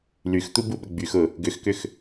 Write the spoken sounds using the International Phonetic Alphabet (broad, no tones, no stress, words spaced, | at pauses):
lyxt̪ubuɓə ɡ͡byxʊ | ɡʏxkʏx